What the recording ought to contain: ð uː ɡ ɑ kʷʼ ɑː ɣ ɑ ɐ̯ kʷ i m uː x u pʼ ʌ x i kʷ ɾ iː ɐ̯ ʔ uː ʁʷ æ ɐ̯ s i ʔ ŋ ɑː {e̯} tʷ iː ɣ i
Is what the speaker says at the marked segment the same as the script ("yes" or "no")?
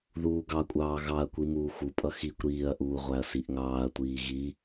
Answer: no